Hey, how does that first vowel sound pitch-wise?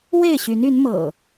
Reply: falling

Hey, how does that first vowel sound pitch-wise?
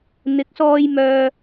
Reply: rising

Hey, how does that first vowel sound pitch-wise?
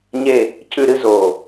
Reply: falling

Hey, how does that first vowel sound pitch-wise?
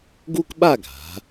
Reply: high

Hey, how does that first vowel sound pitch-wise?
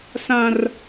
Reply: low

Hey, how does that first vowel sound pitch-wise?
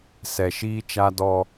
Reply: low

